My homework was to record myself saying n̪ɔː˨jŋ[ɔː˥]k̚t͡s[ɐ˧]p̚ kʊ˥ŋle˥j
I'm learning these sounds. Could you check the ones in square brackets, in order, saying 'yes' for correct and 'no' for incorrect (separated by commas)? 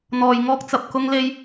yes, yes